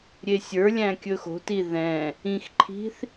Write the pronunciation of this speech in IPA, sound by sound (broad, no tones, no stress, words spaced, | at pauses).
ɾʲesʲə˞lʲæ̃ kʲɵxo̤ti ðɛ̃ | ĩxǃʰi̤θ